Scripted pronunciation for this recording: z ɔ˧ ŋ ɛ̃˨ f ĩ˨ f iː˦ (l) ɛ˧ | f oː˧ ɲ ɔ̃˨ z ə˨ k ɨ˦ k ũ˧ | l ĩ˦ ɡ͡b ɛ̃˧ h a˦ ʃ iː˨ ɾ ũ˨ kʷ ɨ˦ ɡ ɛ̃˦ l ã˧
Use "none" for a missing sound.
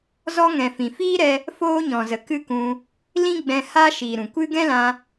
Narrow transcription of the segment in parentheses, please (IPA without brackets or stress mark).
ɾ